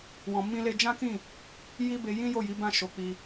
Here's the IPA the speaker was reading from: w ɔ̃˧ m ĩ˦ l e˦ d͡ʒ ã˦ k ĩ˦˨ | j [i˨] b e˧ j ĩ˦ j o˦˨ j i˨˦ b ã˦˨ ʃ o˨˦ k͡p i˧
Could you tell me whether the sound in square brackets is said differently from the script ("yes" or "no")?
yes